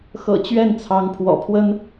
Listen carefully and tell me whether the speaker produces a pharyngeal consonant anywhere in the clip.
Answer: no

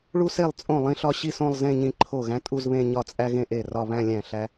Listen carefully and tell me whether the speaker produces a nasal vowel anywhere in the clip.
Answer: yes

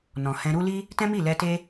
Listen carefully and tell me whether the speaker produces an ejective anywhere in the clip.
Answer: no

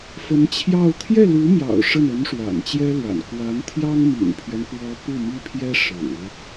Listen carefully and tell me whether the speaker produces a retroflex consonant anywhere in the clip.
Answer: yes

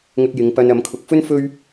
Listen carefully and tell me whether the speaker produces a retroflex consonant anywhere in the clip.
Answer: no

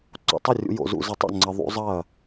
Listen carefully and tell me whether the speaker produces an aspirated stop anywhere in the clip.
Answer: no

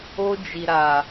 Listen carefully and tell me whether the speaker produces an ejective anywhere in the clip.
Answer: no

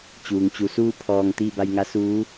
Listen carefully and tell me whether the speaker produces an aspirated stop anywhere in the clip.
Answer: yes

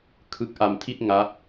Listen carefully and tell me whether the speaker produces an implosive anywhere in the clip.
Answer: no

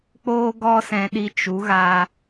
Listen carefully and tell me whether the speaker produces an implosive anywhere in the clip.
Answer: yes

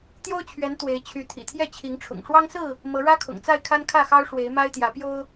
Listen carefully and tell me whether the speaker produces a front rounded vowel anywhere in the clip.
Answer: yes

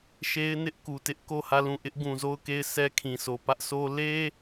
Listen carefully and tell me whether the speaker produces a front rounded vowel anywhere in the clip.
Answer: no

